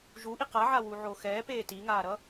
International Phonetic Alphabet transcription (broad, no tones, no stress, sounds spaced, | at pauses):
ʒ u ʔ i q a ʕ a w u ʕ o x ɛː p eː t i ŋ aː ɾ ʌ